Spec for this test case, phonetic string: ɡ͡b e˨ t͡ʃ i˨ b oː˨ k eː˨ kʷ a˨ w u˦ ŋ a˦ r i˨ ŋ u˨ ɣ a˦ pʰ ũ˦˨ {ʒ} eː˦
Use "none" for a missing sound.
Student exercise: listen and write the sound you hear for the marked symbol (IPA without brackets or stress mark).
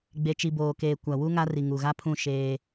ʃ